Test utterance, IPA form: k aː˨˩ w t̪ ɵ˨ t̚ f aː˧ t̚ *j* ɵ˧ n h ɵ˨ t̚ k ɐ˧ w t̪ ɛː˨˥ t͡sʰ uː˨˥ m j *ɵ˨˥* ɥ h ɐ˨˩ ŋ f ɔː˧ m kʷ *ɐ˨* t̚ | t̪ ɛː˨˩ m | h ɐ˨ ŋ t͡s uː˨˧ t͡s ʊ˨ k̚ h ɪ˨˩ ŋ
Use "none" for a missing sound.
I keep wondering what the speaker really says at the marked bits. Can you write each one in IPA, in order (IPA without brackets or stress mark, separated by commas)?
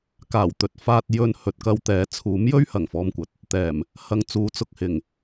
j, ɵ˥, ɐ˨